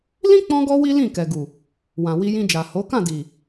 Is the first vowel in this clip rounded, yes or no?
no